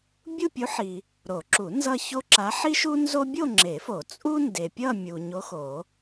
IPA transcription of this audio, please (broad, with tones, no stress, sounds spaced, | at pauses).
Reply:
bʲ u˥˧ pʲ u˧˥ ħ i˨ | ɾ o˨˩˦ ǁ u˨˩˦ n z ʌ˥˧ ç o˥ ǁ a˧˥ ħ i˥ ʃ u˥ n z o˥ bʲ o˥˧ ŋ͡ǁ e˨˩˦ f o˨˩˦ t͡sʼ u˥ n d e˨ pʲ ʌ˥˧ mʲ u˨ ɲ o˧˥ x o˨˩˦